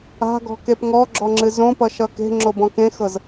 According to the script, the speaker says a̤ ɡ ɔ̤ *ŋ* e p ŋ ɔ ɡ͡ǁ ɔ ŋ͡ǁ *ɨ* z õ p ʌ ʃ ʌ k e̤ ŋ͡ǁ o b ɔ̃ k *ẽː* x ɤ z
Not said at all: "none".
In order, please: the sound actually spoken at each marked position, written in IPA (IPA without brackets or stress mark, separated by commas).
k, ɨ, ẽ